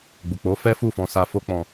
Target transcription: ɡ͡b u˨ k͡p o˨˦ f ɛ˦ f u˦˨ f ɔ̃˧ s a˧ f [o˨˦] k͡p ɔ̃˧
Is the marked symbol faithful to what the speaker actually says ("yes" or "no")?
no